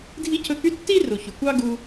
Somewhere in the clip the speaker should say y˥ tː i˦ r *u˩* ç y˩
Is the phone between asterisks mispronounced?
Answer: no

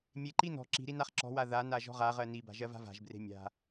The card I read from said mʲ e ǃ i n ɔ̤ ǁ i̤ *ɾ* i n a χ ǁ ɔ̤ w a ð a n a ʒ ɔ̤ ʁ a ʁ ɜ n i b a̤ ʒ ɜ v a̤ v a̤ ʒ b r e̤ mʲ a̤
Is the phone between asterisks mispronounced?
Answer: no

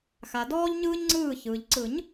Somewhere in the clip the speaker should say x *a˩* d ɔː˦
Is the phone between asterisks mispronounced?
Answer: no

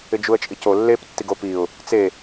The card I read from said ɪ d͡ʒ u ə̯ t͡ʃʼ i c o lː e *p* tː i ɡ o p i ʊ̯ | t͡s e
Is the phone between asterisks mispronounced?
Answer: no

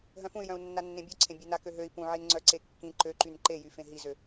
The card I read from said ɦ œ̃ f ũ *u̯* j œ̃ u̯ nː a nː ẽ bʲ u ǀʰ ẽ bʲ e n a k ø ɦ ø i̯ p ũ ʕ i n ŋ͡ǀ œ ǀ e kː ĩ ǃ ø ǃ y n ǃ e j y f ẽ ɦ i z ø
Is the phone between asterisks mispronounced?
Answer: yes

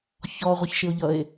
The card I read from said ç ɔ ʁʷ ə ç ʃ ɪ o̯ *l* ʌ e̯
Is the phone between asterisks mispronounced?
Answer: yes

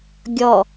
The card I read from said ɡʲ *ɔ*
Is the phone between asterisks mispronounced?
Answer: no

